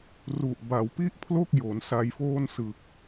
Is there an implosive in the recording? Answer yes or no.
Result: no